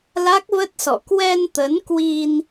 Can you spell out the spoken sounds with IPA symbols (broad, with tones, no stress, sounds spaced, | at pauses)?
l a˦˥ k̚ v ə˦˥ t̚ s ɔ̰˧˨ k w ɛ˧ n t̪ ə˨˦ n k w i˧ n